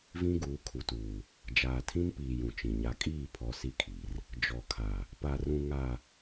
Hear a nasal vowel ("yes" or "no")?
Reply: yes